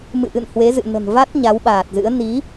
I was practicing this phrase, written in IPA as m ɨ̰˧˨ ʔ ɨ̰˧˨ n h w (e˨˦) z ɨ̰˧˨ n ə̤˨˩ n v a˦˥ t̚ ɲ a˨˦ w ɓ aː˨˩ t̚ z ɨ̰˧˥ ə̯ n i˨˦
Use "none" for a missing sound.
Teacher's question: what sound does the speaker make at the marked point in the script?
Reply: e˨˦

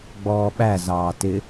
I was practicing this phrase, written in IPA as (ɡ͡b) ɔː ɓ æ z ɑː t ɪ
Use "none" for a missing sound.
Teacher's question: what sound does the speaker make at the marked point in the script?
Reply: ɡ͡b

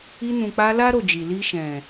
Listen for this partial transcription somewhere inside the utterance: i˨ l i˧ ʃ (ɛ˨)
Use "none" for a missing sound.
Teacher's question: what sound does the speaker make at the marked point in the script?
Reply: ɛ̃˨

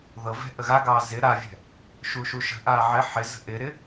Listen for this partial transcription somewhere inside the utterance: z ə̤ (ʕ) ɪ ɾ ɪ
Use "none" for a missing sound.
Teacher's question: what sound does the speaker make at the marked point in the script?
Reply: ʔ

